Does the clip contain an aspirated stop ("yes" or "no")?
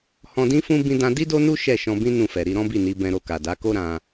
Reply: no